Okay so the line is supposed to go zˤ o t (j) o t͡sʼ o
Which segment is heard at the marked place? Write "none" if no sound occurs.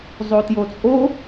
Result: j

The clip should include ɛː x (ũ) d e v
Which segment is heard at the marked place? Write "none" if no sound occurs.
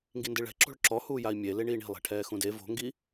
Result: ũ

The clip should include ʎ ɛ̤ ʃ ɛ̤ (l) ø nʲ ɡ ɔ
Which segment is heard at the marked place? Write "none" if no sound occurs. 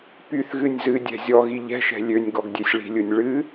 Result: lʲ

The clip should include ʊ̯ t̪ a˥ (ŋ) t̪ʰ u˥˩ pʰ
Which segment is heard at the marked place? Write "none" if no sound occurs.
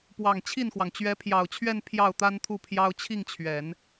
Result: n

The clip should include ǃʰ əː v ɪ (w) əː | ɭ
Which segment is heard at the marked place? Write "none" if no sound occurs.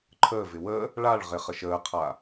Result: w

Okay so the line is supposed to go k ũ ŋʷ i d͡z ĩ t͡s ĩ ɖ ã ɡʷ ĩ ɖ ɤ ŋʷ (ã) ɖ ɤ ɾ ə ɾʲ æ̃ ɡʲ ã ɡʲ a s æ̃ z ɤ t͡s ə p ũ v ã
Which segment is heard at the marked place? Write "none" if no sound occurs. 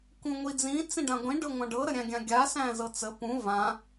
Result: ã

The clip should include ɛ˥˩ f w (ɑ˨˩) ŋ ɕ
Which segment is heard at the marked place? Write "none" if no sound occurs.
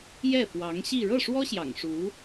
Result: ɑ˧˥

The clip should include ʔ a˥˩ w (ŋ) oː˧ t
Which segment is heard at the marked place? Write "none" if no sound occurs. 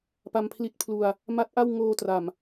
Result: ŋ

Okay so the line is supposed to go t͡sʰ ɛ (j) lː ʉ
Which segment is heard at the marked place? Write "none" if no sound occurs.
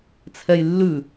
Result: j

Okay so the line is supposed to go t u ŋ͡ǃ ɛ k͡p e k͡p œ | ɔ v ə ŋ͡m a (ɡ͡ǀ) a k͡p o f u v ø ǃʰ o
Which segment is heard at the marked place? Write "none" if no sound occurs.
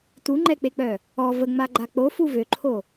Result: ɡ͡ǃ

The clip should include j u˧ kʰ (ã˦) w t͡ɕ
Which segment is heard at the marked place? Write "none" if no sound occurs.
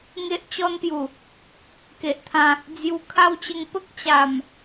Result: a˦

